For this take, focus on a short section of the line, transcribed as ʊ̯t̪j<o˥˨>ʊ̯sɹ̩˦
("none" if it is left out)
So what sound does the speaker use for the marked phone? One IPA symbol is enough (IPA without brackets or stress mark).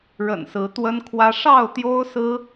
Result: o˦